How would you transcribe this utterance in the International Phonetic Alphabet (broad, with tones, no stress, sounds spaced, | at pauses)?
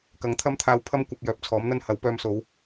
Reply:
k ɐ˨˥ ŋ t̪ʰ ɐ˥ m t̪ʰ aː˧ w pʰ ɐ˥ m kʷ ɐ˨ p̚ j œː˨ p̚ t͡sʰ ɔː˨˥ m n̪ ɐ˥ n h ɐ˨˥ w p œː˧ m s o˨˧ w